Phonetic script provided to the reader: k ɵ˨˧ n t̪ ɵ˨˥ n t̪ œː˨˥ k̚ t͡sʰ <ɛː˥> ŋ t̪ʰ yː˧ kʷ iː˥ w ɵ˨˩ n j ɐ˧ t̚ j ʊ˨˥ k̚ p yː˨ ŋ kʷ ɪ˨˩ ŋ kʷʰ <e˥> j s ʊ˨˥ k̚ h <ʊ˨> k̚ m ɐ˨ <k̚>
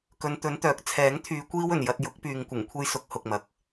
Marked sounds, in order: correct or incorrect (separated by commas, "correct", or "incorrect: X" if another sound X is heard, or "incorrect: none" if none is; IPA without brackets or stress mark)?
incorrect: ɛː˨˥, correct, correct, correct